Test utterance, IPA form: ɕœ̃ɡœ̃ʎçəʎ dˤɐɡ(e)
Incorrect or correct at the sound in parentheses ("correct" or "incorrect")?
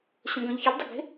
incorrect